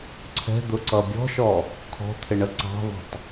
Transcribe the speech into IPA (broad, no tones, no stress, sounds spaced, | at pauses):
ǀʰ ɛ̤ d̪ ʊ ǀ ʌ bʲ ɔ̤ ʃ ɔ | kʰ ɔ̤ t̪ʰ ɪ ɳ ə ǀ ɑ̤ ðˤ ə̤ tˤ